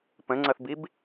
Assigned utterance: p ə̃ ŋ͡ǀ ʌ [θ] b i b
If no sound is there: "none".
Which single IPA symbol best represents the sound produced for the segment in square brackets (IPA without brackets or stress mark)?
θ